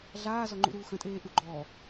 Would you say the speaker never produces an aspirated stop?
yes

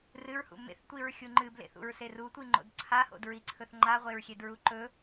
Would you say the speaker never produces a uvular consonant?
no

